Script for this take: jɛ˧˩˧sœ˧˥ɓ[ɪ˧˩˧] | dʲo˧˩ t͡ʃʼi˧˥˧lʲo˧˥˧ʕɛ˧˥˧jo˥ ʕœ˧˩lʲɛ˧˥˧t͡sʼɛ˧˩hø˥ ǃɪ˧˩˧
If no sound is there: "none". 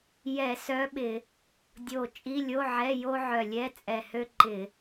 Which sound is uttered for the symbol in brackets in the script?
ɪ˧˩˧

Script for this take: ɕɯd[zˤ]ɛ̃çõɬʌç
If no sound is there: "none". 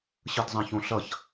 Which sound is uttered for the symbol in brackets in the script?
zˤ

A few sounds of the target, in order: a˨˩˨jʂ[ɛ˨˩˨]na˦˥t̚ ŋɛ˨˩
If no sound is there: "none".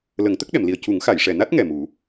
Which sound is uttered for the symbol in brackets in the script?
ɛ˨˩˨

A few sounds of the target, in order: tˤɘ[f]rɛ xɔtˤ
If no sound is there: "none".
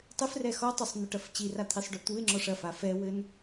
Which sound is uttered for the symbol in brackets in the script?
f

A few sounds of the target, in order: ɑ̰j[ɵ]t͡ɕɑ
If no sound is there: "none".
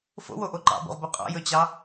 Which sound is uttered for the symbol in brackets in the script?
ɵ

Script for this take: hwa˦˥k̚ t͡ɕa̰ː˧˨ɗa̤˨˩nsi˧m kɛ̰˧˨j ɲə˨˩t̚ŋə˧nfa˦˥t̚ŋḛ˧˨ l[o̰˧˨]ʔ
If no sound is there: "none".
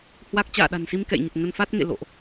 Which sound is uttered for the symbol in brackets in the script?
o̰˧˨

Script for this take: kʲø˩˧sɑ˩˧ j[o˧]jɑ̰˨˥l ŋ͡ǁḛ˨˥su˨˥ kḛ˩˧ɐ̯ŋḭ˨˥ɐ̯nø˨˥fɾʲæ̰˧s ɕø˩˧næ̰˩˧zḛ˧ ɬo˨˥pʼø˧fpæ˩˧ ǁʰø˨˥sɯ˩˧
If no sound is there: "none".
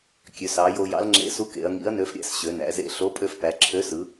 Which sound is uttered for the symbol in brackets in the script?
o˧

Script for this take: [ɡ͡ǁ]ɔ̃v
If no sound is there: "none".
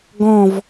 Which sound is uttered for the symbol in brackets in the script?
ɡ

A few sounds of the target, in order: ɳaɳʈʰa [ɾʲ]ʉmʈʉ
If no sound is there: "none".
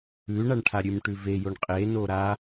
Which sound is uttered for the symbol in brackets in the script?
ɾʲ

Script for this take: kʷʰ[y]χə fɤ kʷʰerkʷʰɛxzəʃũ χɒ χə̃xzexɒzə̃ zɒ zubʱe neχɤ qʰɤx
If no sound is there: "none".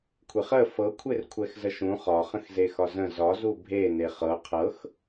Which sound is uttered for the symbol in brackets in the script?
e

